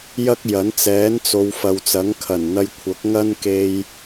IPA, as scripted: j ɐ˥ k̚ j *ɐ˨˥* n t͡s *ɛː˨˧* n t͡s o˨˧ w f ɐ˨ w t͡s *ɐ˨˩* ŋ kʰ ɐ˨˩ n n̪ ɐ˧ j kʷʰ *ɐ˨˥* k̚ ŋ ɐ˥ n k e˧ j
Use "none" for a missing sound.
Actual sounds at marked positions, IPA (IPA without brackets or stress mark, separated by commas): ɐ˨˥, ɛː˨˥, ɐ˨˥, ɐ˨˥